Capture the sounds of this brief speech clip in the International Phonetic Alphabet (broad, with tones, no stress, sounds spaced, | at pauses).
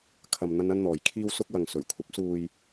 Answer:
kʰ ɐ˨ m n̪ ɐ˥ n ɐ˥ n n̪ ɔː˨ j kʰ iː˧ w s ʊ˧ k̚ w ɐ˨ ŋ s ɵ˨˩ ɥ kʷʰ ɐ˨˥ p̚ s uː˨ j